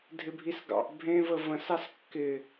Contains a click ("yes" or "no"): no